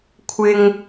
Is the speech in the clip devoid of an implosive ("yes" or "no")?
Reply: yes